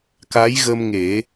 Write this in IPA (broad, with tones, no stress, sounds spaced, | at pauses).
k a˧˥ j ɣ ə˧ m ŋ e˨˩˦